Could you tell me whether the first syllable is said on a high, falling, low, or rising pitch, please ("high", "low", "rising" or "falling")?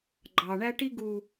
low